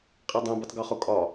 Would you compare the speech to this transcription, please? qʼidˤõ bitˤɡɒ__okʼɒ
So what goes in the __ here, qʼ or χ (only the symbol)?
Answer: χ